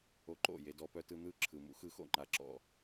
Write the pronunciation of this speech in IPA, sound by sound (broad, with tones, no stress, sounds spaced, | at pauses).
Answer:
o˧ ǃ o̰˦˨ j e˧ d ɔ˧ p œ˦ t ɯ˧ n̪ ɯ˦˨ ǁʰ ɯ˨ m ṵ˦ x ɯ˧ x o̰˦˨ ŋ͡ǃ a˦ ǁ ɔ̰˦˨